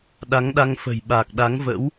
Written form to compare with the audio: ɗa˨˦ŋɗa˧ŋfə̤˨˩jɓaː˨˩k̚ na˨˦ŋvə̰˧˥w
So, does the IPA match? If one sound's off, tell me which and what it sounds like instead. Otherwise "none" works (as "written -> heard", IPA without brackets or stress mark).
n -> ɗ